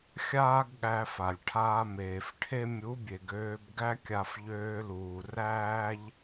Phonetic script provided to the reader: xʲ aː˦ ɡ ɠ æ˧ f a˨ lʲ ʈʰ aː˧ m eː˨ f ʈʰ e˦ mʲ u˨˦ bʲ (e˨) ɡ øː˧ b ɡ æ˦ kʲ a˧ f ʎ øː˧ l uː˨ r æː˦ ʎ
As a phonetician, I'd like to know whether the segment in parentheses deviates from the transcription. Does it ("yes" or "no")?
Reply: no